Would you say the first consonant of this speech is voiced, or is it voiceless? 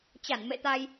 voiceless